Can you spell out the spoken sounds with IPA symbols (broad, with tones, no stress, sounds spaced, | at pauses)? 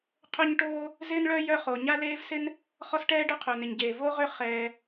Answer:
qʰ œ˥ ɲ ʈ oː˥ | z ɪː˥ n ɭ œ˥ j œ˥ χ o˩ ɲ a˥ l eː˥ v s ɪ˥ n | χ ɔ˥ s ʈ ɛː˥ ɖ œ˥ qʰ œ˩ n ɪ˩ ɲ ɟ eː˩ v o˥ ʁ ʏ˥ χ ɛː˩